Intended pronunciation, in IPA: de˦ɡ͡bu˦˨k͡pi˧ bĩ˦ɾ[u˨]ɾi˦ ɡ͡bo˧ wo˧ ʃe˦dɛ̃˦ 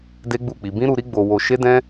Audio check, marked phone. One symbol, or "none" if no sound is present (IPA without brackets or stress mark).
u˧